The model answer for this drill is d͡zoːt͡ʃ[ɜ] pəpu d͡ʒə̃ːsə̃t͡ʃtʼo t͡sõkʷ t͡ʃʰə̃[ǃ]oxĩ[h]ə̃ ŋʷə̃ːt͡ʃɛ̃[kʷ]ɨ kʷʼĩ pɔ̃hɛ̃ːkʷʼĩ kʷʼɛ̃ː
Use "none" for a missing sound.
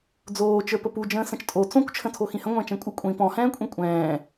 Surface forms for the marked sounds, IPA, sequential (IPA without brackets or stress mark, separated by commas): ə˞, tʰ, h, kʷʼ